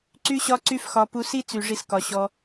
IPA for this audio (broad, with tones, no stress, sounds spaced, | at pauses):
ǀ y˦ ɕ ɒ˦ ǀ y˦ f x ɒ˧ p u˧ s i˦ t͡s y˨ ʐ i˦ s k ɒ˧ ɕ ɔ˧